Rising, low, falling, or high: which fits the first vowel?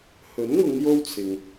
rising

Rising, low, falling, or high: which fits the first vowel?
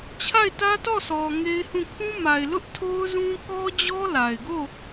falling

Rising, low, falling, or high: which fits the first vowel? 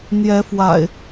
rising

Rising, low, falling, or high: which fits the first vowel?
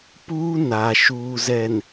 high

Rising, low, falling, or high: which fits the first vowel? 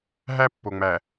high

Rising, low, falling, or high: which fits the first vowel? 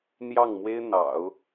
falling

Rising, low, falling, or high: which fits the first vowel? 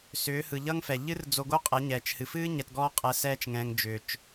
rising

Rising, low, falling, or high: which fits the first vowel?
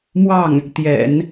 falling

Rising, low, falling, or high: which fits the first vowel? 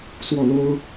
falling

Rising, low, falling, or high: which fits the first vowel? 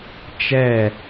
falling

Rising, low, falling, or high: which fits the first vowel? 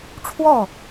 falling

